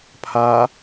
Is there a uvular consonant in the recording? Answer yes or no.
no